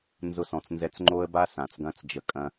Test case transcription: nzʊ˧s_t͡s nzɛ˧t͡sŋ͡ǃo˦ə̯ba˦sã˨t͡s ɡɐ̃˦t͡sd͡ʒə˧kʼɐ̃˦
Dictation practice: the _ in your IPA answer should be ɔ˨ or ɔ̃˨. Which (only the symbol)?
ɔ̃˨